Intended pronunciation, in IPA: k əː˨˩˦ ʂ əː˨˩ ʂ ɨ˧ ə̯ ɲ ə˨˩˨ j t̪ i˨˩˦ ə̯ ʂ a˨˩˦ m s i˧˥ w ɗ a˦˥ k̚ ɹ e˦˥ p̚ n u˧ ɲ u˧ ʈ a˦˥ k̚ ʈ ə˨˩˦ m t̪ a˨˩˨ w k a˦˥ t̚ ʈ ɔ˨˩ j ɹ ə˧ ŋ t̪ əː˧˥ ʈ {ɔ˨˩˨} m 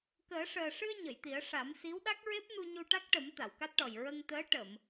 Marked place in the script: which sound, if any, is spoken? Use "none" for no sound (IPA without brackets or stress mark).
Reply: ə˨˩˨